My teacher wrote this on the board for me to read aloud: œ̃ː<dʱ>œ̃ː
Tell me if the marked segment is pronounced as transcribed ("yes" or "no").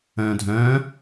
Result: yes